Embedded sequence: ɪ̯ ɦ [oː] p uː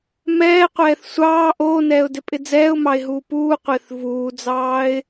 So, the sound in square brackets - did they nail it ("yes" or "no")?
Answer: no